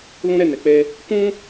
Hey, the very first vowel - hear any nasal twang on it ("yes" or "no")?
yes